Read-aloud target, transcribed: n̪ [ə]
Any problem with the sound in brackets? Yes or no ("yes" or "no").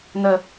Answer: no